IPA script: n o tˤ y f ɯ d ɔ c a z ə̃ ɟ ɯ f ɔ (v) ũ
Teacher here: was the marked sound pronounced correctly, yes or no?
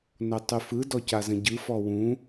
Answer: no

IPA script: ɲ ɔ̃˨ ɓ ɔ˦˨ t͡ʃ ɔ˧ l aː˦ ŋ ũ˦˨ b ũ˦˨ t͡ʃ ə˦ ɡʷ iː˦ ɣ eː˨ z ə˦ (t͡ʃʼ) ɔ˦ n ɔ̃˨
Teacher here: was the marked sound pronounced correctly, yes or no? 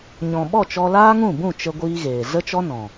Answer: no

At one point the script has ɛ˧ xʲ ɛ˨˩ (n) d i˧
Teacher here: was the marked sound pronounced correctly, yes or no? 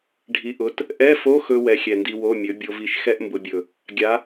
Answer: yes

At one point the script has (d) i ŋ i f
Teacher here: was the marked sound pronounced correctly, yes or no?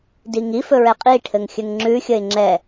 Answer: yes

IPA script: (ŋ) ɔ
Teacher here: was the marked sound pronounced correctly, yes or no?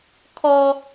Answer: no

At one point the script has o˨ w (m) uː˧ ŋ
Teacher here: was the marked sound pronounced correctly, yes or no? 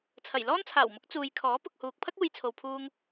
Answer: no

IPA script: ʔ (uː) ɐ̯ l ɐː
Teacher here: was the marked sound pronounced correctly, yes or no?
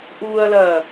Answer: yes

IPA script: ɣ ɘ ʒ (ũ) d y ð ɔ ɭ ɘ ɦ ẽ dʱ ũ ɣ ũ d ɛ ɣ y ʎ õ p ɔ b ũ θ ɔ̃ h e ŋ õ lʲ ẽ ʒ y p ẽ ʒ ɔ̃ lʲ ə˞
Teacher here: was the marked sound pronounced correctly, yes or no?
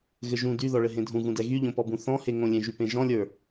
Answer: yes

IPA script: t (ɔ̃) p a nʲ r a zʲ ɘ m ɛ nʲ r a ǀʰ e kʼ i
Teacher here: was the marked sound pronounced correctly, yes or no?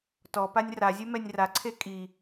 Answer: no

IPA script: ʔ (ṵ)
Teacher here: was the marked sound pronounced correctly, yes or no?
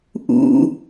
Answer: yes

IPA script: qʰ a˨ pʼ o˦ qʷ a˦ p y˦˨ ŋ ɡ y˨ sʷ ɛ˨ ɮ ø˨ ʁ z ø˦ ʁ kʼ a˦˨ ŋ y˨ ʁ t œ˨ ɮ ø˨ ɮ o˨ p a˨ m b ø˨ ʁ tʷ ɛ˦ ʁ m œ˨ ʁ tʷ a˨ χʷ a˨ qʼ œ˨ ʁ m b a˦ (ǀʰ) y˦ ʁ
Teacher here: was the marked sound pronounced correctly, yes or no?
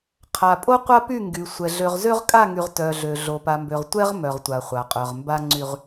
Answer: no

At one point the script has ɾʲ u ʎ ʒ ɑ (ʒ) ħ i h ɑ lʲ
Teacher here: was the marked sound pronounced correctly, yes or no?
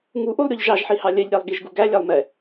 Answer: yes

